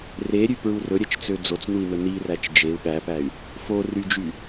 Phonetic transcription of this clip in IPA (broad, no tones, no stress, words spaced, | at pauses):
reɾʲʉpɹu rɵɾʲɛt͡ʃt͡sø d͡zot͡snui̯nɵ niræt͡ʃ d͡ʒeu̯ ɠæpæy̯ | fo ryd͡ʒy